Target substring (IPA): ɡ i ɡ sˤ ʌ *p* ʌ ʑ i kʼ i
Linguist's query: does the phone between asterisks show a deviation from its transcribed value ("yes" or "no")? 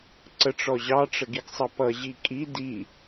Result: no